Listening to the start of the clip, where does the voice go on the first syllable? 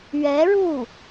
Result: rising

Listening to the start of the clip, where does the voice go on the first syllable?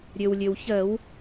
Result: low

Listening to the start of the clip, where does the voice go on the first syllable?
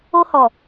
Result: high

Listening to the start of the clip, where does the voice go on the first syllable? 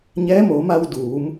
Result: rising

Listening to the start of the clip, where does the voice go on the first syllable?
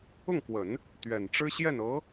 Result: falling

